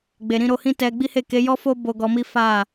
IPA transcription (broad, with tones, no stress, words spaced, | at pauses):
ɡ͡be˨ɾĩ˧ɾo˧hĩ˦ tɛ˧ ɡ͡bi˦he˦˨ ke˨˦jɔ˦fo˦ bo˧ɡɔ˧mi˦ fa˦˨